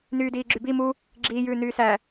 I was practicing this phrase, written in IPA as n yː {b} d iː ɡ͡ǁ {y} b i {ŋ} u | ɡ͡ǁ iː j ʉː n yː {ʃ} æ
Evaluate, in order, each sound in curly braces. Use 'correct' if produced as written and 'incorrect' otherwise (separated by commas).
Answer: incorrect, correct, incorrect, incorrect